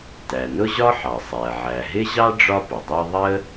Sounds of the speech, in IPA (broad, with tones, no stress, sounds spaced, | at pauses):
t æ˩ n ʊ˥ ʑ ɒ˥ ħ ɑ˩ sˤ æ˩ ʕ æ˩ ɦ ɪ˥ ʑ ɑ˥ ɖ͡ʐ ɒ˥ p ʊ˩ dˤ ɑ˥ ðˤ ə˥